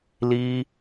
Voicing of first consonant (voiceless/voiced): voiced